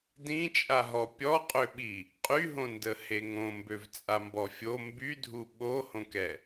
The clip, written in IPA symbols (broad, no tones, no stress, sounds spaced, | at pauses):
d ĩ t͡ʃʼ a ɦ ɔ pʲ ɔ qʼ ø ɓ i | qʼ y ɦ õ n d ə h e ŋ õ m b ø v t͡sʼ a m b ɔ fʲ o m b y dʱ u ɓ o h õ k ɛ